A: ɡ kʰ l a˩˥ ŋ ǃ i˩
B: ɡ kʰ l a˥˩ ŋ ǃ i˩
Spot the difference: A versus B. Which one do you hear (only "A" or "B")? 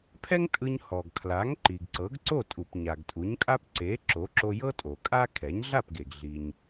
A